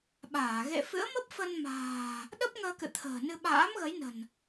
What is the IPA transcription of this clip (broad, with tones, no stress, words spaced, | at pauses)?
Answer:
ɓaː˧˩ ɣḛ˧˨fɨ̰˧˥ə̯mə˦˥p̚ fə˧nma̤ː˨˩ | ɗə˦˥p̚ ŋəː˧kɨ̰˧˨ t̪ʰə̤ː˨˩nɨ˧ ɓa̰ː˧˥mɣə˨˦jnə̤˨˩n